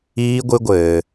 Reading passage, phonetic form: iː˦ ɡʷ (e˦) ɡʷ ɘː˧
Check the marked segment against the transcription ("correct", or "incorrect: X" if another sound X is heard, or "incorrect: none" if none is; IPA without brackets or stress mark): incorrect: ɨ˦